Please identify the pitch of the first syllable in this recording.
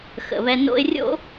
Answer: low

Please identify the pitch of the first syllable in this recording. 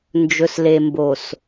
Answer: low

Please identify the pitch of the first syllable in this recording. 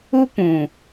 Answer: high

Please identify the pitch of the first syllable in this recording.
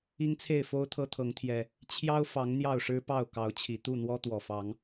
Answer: high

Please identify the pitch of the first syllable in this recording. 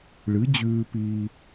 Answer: rising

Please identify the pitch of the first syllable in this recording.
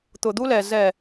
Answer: low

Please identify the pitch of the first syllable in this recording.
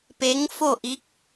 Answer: rising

